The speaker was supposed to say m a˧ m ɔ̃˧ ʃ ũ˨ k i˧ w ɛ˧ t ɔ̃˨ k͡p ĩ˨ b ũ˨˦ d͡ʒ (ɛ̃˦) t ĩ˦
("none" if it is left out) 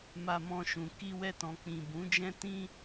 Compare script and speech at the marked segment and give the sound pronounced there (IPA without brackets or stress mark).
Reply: ɛ̃˦